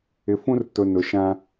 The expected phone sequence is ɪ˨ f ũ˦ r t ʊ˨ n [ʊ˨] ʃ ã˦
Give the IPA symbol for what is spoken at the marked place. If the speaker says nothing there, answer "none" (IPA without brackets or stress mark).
ʊ˨